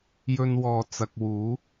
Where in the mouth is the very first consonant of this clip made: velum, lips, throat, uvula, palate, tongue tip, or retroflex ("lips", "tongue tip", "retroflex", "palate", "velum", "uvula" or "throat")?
palate